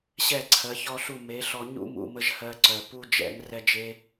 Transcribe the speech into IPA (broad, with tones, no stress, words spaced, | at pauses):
ɕɛ˦˨ǀʰɜ˨˦çɔ˦ɬu˦˨ me˨˦ɬɔ˧ ɲṵ˦mṵ˨mə˧ʒ hɜ˧ǀœ˨pu˦ d͡ʒɛ̰˨˦ŋ rɛ˦d͡ʒe˦